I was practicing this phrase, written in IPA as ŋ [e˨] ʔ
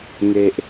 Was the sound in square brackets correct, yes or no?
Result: yes